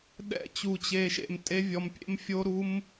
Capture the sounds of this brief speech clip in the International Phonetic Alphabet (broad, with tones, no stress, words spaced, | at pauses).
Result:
ɗɛ̰˦˨ t͡ɕu˧t͡ɕe˧ʃḛ˧m tʼe˦vʲɔ˧mpʲḛ˦m fʲo˦ɾu˦m